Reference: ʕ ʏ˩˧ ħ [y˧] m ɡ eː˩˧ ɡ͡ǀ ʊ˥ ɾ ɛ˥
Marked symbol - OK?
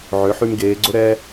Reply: yes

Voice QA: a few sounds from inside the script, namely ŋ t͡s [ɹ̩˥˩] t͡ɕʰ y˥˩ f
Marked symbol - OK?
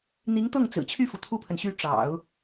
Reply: no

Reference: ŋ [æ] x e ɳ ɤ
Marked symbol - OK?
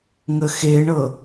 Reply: no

